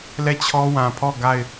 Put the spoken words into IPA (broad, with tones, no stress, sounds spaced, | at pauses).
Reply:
l ɛ˦˨ t͡ɕʰ ɔ˦ w ã˨ pʰ ɔ˦˨ ɡ a˦˨ ɪ̯